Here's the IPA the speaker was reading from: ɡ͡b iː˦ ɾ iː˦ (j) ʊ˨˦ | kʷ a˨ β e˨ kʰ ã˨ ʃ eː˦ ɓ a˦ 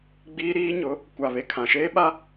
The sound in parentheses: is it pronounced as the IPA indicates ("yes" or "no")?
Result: no